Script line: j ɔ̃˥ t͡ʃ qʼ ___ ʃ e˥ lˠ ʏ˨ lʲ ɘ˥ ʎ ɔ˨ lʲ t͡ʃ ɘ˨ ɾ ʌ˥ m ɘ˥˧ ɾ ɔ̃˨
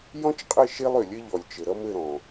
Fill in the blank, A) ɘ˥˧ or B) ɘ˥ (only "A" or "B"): A